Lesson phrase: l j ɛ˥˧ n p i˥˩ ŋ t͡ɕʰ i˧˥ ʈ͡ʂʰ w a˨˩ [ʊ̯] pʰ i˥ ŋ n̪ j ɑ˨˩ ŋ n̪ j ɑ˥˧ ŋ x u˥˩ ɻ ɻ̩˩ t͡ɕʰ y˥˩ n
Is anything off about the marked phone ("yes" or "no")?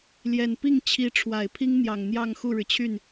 yes